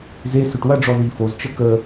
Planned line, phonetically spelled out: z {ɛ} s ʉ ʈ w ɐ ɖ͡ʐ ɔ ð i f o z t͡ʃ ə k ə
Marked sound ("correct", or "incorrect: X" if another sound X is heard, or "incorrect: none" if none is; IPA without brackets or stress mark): incorrect: e